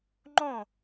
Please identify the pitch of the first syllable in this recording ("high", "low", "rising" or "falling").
falling